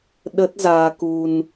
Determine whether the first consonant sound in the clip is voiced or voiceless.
voiced